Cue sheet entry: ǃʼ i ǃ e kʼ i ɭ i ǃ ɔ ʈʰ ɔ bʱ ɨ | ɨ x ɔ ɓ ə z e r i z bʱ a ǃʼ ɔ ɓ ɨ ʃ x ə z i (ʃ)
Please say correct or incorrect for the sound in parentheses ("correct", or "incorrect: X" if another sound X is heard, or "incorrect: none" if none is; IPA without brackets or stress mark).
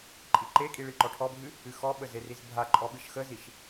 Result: correct